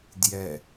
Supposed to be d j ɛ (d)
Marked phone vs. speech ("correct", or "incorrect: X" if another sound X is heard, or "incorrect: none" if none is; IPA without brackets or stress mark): incorrect: none